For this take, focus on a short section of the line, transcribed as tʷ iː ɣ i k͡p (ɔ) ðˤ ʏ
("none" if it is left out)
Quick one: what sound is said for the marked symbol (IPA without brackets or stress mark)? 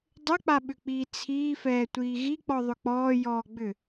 ɔ